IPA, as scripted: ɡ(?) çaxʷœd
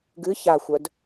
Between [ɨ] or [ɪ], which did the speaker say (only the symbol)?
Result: ɨ